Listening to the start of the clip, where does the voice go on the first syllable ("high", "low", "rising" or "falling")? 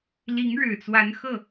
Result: rising